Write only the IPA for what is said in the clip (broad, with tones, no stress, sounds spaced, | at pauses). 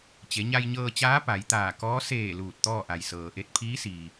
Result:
t͡ɕ e˩˧ ɲ a˧ j ɲ ɤː˧ t͡ɕ aː˧˥ p a˩˧ j t̪ aː˧˩ k ɔː˧˥ s eː˧˩ l uː˧˩ t̚ t̪ ɔː˥˨ ʔ a˩ j s ɤː˩ ʔ e˥˨ t̚ pʰ iː˧˥ s iː˩